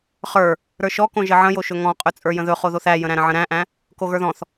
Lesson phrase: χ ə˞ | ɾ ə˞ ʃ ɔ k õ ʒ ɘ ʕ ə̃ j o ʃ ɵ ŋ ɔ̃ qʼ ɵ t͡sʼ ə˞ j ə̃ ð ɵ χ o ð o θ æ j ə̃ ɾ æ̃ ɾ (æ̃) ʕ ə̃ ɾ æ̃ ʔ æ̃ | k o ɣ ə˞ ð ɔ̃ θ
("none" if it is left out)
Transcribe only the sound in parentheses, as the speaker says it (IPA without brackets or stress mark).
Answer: ə̃